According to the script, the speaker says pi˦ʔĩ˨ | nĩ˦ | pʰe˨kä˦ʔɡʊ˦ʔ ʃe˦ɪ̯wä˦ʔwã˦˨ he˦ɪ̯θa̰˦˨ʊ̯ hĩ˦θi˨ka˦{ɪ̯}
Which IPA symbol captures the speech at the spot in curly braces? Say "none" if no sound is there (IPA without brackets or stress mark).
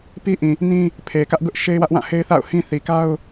ʊ̯